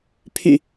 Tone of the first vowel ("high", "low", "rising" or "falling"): low